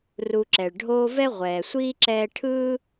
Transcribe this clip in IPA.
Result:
r u˨ ǁ ɛ˩ ɭ ɖʱ oː˦ v ɛ˥ ʁʷ ɛː˩ sʷ iː˥ ǁ ɛː˦ ʈʰ ɯː˥

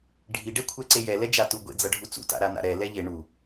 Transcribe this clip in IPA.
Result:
ɖʱ i ɖ ɛ kʷʰ ɛ ǀ e j ɛ l ɛ d͡ʒ a t u ɡʷ ḛ d͡z ʌ ɖʱ u t͡s ṵ t a̰ ɾ a n a̰ ɾ ɛ l ɛ ʎ e ɳ u

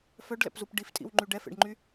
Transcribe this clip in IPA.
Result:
f œ ɖ l ɛ̰ p z u p ɖ i f tʼ ḭ w ŋ͡ǃ y ɖ ɛ f ḛ ɖ ŋ͡ǃ y

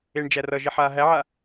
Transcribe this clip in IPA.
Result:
e ɳ d͡ʒ æ r ʌ ʒ i ħ aː ɦ æ ʕ a

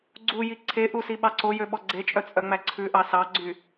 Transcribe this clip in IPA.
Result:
ɡ͡ǀ u j i ǀʰ e ʔ u s i ɓ ɑ ǀ o j ø ɓ ɔ ɡ͡ǀ e t͡ʃʼ œ t͡sʼ œ ŋ͡m æ ǀʰ ʉ ʔ ɑ s ɑ ɡ͡ǀ y

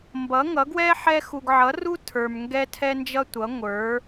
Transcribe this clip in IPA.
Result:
m b ʌ˨˥ ŋ ʌ˨˥ ɡ w ɛ˥ ħ ɛ˥ x u˧ ɡ ʕ ʌ˨˥ r u˥ tʰ ə˞˧ m ŋ ɡ ɛ˥ tʰ ɛ˥ n d͡ʒ ʌ˥ tʷ ʌ˨˥ ŋʷ ə˞˨˥

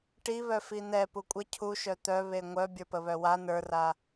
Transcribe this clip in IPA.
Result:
ʈ i β œ f i n̪ ɛ p u kʷʼ ə cʰ u ʃ œ t̪ œ β e ŋʷ œ bʲ ə˞ p ə β œ w a n ə˞ r a

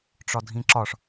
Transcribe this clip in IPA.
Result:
ʈ͡ʂ ɒ dʱ ĩ ǁ ɒ ʂ

